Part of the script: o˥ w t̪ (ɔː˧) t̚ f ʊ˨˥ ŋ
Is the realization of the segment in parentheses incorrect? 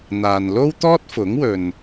yes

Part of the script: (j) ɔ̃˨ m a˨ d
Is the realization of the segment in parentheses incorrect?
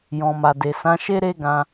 no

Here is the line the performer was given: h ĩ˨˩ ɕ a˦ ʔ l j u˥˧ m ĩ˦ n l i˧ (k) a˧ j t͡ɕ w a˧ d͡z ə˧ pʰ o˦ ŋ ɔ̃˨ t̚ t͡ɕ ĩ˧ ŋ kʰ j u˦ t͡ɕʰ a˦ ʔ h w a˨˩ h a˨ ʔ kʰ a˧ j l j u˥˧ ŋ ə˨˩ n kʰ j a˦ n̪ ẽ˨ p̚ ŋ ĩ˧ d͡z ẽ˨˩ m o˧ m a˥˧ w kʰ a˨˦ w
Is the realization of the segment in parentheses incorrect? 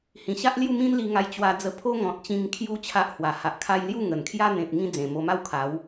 yes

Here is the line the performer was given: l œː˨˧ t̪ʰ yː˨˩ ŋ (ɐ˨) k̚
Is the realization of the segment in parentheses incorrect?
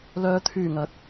yes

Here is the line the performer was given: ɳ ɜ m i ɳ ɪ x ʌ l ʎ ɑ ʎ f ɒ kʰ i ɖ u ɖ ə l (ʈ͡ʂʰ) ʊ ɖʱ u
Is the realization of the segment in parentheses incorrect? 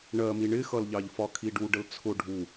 yes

